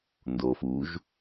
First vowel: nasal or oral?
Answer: oral